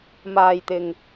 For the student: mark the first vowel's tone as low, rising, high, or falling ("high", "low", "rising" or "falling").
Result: low